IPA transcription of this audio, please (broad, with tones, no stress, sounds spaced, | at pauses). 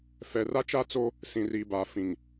f ɛ˨ r a˦ t͡ʃ a˦ t͡s o˦ | s ĩ˨ r i˨ b aː˨ f ĩ˨ ŋ